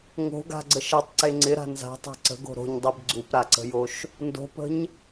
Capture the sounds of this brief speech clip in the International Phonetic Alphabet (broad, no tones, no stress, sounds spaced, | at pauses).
ŋ o̤ ɡ a̤ ɡ͡ǀ ə ʃ ɐ tˤ ǀ e ŋ͡ǀ ɪ ɾ a̤ n z a̤ tˤ a̤ ǀ ə̤ ɡ o̤ ɾ o̤ ɲ dˤ e b ɡ͡ǀ u p ɾ a ǀ ə̤ j o ʃ | n d o̤ p ə̤ ɲ